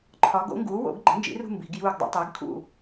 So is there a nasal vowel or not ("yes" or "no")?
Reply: no